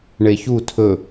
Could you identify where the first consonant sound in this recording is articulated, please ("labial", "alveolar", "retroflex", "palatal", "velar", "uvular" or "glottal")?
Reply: retroflex